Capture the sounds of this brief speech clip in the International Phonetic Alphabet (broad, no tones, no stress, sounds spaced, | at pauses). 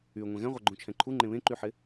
y ŋʷ ɛ̃ ɣ ɛ̃ ʁʷ ɛ ɡ͡ǃ ũ t͡ʃʰ ɛ̃ ǃʰ u ŋ͡ǃ ẽ β ẽ ǃ y ħ ɪ